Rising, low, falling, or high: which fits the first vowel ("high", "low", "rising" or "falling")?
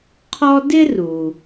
high